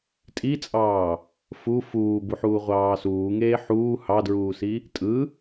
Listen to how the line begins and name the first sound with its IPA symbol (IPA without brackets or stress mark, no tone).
tʼ